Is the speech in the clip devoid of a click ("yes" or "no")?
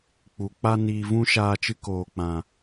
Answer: yes